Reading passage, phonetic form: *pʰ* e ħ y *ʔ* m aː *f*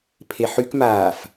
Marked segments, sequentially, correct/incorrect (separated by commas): correct, incorrect, correct